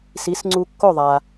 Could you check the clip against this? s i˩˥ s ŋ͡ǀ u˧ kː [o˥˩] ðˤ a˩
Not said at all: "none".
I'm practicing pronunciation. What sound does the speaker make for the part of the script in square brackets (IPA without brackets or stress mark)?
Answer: o˥˩